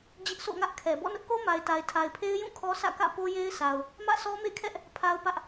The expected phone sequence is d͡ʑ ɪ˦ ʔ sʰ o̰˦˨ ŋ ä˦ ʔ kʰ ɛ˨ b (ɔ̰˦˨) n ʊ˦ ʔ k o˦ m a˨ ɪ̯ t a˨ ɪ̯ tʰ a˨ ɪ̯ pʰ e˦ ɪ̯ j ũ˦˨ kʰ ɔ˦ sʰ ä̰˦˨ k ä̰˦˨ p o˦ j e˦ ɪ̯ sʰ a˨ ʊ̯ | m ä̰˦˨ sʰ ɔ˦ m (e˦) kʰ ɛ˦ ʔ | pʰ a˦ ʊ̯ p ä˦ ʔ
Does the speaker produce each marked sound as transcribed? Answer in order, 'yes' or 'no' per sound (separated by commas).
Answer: yes, no